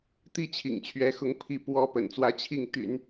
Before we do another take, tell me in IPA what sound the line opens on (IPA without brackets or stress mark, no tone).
t̪